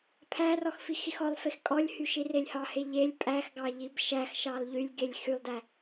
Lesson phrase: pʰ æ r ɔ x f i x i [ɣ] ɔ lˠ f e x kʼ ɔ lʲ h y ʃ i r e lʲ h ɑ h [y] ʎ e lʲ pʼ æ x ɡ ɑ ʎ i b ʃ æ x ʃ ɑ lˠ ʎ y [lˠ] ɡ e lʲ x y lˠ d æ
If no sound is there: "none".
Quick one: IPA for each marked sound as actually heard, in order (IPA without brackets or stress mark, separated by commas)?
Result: x, e, lʲ